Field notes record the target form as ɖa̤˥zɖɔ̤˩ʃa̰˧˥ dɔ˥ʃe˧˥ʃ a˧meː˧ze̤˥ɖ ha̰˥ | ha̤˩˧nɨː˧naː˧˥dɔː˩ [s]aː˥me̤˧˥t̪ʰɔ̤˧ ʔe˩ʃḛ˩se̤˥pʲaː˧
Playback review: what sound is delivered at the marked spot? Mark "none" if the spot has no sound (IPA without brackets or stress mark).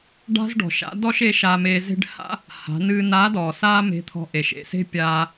s